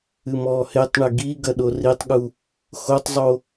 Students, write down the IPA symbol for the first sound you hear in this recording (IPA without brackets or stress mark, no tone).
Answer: ɨ